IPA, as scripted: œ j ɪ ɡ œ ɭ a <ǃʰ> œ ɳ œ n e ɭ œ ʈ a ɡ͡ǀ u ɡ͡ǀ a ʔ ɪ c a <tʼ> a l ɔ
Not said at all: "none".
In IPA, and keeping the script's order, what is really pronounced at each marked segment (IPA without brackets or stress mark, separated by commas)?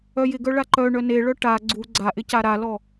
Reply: ǃ, ɾ